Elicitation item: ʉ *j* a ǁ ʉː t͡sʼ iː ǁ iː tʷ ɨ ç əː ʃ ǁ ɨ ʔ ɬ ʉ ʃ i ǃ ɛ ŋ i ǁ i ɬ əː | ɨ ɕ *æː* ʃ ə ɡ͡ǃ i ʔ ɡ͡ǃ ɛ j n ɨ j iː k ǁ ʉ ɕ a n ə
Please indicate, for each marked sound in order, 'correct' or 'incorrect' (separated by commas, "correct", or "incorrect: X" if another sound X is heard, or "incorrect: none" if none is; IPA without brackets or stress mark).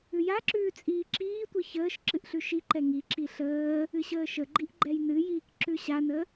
correct, incorrect: əː